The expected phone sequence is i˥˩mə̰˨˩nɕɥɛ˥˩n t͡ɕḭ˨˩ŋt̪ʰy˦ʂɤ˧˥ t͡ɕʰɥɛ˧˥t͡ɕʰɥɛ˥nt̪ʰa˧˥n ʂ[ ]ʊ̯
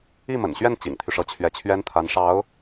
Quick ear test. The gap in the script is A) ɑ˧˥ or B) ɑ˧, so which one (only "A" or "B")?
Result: A